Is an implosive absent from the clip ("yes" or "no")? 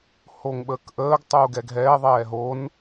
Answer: no